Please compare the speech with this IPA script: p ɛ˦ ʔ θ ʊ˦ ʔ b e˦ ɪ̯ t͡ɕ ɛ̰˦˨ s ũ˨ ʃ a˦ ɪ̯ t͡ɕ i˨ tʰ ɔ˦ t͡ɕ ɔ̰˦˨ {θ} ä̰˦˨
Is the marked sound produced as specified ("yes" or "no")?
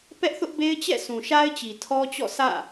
no